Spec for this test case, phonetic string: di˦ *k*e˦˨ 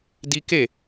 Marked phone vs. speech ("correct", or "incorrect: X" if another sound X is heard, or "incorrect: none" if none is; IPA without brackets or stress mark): correct